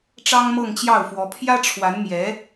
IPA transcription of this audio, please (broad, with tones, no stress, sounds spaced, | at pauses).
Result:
ʈ͡ʂ ɑ˥ ŋ m ɤ˥˧ ŋ t͡ɕ j ɑ˥˩ ʊ̯ f w ɔ˧˥ pʰ j ä˥ ʈ͡ʂʰ w a˧˥ n m j ɛ˧˥